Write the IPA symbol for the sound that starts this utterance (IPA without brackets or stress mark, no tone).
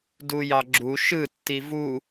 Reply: d